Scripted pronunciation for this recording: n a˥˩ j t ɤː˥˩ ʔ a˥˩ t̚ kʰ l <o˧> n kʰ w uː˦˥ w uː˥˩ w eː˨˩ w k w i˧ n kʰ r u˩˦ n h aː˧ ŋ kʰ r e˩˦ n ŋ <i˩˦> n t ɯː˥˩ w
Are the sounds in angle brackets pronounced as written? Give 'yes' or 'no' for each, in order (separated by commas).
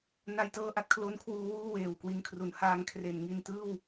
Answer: no, no